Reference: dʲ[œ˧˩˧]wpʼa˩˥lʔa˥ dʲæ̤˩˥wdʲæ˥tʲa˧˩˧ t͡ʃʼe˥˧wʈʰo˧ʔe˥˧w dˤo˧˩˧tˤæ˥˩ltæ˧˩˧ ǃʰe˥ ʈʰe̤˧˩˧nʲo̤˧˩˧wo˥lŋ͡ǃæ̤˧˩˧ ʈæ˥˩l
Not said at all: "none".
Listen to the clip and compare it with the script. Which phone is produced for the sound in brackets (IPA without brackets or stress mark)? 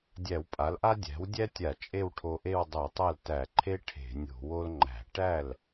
æ˧˩˧